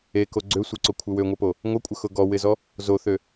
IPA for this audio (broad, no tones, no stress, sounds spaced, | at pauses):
e k o ɡ͡ǀ ø sʷ e ǀ o kʷʰ ɪ w ø ŋʷ ɐ p o | ŋʷ ɐ kʷʼ ə x ʊ ɡ ɔ w ɪ z ɔ | z o θ ø